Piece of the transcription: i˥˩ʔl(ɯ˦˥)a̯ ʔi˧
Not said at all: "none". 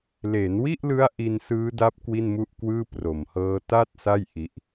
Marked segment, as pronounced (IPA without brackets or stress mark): ɯ˦˥